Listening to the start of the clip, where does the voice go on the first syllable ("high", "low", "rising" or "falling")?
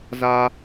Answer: high